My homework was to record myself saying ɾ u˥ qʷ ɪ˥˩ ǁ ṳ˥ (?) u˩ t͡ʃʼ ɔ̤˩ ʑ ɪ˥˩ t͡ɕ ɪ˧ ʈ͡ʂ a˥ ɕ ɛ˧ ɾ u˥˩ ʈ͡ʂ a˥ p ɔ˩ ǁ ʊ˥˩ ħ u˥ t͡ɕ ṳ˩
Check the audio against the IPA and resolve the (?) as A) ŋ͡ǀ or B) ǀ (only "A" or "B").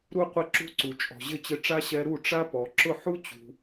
B